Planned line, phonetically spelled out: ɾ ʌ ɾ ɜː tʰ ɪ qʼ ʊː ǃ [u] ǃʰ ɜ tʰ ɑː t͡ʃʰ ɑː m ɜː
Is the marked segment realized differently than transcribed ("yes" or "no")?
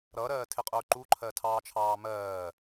no